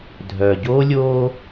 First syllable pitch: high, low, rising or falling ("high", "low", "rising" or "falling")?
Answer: low